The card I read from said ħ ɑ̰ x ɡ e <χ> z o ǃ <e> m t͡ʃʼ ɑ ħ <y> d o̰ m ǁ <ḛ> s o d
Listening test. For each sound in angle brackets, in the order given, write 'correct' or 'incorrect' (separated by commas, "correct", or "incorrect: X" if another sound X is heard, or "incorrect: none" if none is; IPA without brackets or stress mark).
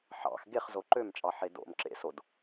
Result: correct, incorrect: ø, incorrect: e, correct